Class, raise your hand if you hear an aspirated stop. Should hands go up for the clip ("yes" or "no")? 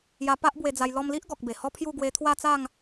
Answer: yes